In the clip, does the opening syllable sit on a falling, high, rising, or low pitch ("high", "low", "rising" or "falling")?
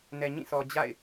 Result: low